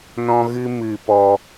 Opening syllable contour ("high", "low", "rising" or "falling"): high